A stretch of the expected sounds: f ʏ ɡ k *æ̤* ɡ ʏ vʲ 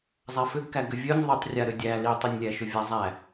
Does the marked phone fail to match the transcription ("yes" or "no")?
yes